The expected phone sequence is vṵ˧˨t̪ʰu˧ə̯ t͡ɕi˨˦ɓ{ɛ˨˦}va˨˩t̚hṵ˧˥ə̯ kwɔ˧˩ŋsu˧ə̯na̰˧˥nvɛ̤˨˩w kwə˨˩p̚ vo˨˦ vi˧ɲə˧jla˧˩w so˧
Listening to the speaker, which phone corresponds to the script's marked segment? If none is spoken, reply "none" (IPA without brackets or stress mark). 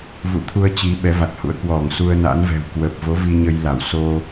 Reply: ɛ˨˦